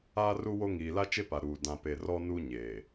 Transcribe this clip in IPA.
aː˦ r u˦ w o˦ ŋ iː˨ l a˦ t͡ʃ e˦ p a˨ ɾ uː˨ d ã˨ p e˨ r ɔ˦ n u˦ ɲ eː˨

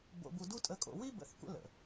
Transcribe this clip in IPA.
b o̰˧ b u˧ d u˦ tʼ ə˧ kʼ o̰˧ w i˦ b ə̰˨˦ θ kʷ ə̰˧ l ə̰˨

